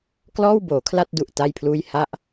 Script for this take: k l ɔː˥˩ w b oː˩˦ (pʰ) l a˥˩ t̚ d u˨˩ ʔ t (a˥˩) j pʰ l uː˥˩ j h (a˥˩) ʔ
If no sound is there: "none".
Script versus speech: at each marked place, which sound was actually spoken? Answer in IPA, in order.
kʰ, a˥˩, a˥˩

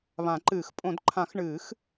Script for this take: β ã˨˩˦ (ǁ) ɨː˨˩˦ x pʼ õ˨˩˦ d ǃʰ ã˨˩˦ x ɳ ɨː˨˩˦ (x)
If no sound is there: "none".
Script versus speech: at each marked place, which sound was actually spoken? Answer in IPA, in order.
ǃ, x

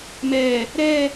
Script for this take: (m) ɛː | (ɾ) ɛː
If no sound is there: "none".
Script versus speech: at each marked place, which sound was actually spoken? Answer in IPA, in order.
m, ɾ

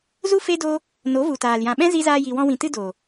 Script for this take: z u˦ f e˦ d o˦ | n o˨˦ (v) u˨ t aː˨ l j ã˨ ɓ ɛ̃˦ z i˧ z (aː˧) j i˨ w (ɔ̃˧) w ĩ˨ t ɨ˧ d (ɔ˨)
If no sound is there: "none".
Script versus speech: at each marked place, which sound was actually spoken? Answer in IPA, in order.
v, aː˧, ɔ̃˧, o˨

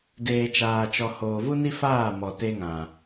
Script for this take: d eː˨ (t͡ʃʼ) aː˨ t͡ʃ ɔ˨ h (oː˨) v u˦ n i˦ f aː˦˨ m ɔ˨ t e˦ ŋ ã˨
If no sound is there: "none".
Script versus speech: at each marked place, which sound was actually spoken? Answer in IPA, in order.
t͡ʃ, oː˨

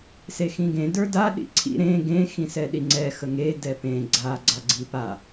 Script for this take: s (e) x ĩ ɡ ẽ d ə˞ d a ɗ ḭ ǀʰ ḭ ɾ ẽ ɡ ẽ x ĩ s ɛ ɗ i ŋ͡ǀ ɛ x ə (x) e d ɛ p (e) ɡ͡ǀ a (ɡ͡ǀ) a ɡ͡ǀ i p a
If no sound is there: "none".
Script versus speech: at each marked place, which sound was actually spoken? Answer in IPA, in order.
e, ŋ, ẽ, ɡ͡ǀ

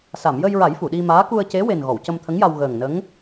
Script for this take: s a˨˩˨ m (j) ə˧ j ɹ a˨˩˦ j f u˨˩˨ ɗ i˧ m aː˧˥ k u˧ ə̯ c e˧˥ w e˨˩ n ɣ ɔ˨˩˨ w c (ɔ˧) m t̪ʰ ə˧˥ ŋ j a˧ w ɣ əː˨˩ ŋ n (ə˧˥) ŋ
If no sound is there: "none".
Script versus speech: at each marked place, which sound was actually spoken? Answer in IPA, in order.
j, ə˧, ə˧˥

